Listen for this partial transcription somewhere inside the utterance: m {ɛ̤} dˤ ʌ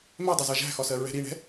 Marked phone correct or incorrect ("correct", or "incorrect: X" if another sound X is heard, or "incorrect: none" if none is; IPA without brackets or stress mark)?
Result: incorrect: ɛ